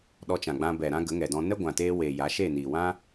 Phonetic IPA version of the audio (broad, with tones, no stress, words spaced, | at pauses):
ɗɔ˧t͡ʃã˨ɡ͡bã˧ bɛ˨ ɾã˦ɡə˨˦ŋɛ˨dɔ̃˧ nɛ˦ɡʷã˨teː˧weː˨ ja˨˦ʃe˦˨ niː˨wã˦